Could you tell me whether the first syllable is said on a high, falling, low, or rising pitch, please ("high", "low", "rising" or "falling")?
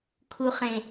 low